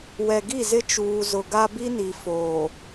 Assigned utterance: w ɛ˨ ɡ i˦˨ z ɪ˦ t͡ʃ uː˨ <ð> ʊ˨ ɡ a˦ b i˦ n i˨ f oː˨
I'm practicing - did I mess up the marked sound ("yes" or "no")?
yes